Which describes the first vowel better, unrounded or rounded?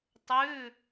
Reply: rounded